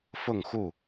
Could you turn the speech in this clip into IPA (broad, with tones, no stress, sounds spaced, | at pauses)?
f ʊ˥˨ ŋ x u˥˨